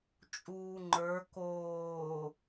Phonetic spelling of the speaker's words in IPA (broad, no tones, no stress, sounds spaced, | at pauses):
t͡ʃʼ uː ŋ͡ǃ ə˞ k oː